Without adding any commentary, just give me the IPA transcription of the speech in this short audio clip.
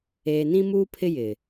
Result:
eː˨nĩ˦muː˦pʰɪ˦ jɪ˨

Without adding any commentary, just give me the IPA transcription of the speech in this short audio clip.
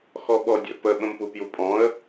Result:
xɔɓɔdʲə̰ pə ɓə̃mpupjupʼɔ̃ə̯

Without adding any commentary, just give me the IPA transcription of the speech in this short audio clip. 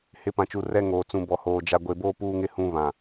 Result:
hɪ˨˦pã˨t͡ʃu˨ rɛ˦ŋoː˨ t͡sũ˨bɔ˨hoː˨ d͡ʒa˨ɡʷe˨boː˦ puː˦ŋɪ˦hũ˦ βã˨

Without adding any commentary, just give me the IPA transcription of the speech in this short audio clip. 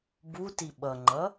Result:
buti ɓʌŋ͡ǃʌ

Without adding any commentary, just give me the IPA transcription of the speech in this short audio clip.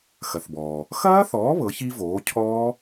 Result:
xɐ˩θbɔː˩ | xɐː˦˥θɔː˩˥ βɤ˩˥çi˦˥voː˩˥ cʰɔː˦˥

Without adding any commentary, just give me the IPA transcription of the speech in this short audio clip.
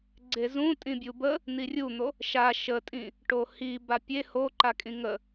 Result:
ɡ͡ǀezũ tʼĩbʲubə | n̪irʲun̪o | ʃa ʃətʼĩ | ʈohi bapʲe hoǃakʼĩ ŋə

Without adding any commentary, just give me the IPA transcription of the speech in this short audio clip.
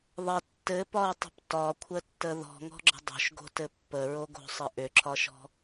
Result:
ðˤɘ tːɘpɒu̯tˤə̤p tɒkʷʰətːə ðɔ̤ŋɔ̤ɡ͡ǁə̤ dˤo̤ʃɡo̤tɘ pːəɹoɡo̤sˤɘ ʔʏǁʰɒʃɔ̤

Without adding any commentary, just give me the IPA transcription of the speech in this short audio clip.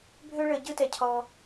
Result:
bʱø˦ɭə˧ ɟɯ˦tɛ˧cʰɔ˧

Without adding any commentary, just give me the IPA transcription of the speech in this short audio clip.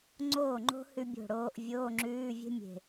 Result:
ŋ͡ǀoː˥˩ŋ͡ǃo̤˥ hʉ˥bʲo̤˥˩ɽoː˥ʔ vʲoː˧˥˧ŋ͡ǁʉː˧˥˧vʲe̤˥ mʲe̤˧˩

